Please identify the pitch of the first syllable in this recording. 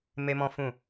high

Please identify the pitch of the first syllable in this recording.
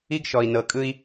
high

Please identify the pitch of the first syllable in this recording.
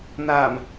low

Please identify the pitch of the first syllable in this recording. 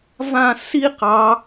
falling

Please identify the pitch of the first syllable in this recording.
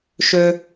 high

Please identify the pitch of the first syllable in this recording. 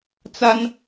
high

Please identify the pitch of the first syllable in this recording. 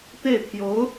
falling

